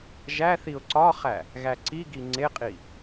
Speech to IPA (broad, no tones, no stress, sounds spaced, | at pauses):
ʒ æ θ i ʊ̯ ǀ ɒ χ æ | ɣ æ ǀ i ɡ i ŋ͡ǀ e qʼ i